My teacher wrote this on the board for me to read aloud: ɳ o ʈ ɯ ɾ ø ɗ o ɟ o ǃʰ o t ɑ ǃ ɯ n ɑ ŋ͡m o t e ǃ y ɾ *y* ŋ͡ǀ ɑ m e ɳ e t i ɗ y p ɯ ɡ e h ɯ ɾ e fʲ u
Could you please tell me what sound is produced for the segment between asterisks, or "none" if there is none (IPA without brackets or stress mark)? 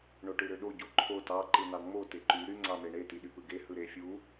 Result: y